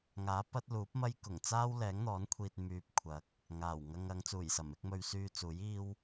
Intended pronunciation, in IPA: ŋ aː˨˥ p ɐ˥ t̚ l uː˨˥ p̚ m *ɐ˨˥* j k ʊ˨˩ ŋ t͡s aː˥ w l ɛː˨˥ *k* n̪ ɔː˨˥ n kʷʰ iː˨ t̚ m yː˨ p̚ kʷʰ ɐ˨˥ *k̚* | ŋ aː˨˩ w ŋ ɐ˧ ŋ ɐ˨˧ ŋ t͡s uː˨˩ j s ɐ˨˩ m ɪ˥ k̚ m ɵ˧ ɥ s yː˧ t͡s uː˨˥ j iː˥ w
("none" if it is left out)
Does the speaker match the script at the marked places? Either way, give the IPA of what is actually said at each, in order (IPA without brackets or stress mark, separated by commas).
ɐ˥, ŋ, k̚